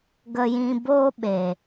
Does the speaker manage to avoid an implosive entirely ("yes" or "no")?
no